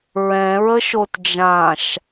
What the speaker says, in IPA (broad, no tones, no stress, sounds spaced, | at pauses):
ɹ ɛ̃ ɹ ə ʃ o t d͡ʒ ã ʃ